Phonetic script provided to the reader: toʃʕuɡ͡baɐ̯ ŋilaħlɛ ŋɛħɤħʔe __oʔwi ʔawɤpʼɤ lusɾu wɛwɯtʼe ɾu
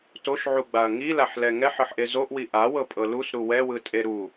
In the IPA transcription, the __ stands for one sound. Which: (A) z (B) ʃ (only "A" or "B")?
A